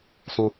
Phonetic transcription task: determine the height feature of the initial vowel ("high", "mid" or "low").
high